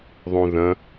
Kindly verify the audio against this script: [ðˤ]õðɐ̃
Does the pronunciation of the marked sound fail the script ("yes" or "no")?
no